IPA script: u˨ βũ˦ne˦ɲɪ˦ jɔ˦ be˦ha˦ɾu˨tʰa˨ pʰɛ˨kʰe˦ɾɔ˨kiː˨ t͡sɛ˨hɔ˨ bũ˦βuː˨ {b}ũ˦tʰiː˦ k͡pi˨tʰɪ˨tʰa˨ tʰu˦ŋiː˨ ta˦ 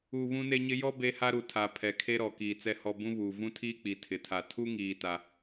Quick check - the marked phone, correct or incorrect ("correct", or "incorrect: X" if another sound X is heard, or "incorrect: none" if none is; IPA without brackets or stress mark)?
incorrect: v